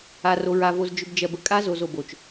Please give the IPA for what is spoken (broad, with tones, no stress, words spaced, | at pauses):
a˨ro˨ɹa˨ vo˨zd͡ʒʏ˨b d͡ʒɜ˨bə˨kʼa˦zo˨z o˨bo˨t͡ʃ